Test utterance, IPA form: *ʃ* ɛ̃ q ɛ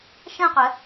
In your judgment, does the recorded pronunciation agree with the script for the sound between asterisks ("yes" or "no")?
yes